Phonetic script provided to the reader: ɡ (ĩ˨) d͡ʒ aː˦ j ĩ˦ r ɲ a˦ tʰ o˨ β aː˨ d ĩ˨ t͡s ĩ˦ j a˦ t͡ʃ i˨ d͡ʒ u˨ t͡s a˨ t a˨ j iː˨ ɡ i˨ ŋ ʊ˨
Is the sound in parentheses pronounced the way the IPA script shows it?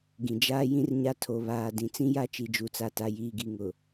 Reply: yes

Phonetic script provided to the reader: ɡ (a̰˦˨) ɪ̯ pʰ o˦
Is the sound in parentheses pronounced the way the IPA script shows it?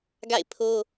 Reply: yes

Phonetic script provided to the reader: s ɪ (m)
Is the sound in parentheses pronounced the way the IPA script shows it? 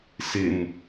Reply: no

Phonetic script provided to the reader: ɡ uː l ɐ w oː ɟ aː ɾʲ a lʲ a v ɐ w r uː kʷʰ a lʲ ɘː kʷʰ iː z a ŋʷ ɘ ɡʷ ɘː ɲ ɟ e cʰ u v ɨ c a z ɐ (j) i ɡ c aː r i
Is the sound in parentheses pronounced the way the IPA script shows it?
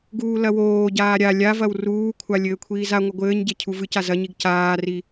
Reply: no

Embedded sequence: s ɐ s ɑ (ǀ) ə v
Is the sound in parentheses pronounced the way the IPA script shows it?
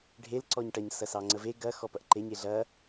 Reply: no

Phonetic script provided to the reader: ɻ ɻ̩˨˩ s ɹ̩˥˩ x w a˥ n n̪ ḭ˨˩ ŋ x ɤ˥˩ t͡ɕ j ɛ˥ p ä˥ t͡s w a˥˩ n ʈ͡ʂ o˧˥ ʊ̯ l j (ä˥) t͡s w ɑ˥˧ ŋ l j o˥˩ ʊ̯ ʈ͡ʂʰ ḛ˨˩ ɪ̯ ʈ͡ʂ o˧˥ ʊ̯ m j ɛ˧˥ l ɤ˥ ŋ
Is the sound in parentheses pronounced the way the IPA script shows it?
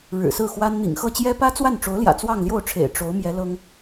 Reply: no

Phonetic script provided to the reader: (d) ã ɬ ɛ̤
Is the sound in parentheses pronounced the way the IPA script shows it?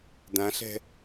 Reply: yes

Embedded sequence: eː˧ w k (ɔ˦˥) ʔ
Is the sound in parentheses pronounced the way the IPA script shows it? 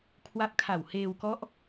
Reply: yes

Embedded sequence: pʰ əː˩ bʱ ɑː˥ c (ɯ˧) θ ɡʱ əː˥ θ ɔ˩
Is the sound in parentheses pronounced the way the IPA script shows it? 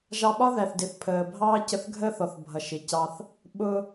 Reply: no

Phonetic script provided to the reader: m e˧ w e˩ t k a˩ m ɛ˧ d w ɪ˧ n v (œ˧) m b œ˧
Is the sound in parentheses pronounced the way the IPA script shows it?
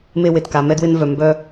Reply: no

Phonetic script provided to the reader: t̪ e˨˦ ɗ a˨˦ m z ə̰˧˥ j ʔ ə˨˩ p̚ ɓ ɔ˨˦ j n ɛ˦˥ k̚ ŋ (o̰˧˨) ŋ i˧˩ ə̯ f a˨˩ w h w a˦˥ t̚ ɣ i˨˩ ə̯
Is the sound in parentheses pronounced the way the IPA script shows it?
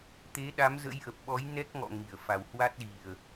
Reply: no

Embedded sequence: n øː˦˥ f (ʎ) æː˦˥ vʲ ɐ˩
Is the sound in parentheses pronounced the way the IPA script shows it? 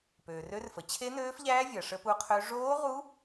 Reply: yes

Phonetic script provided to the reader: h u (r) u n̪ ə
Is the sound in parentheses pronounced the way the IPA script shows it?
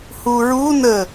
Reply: no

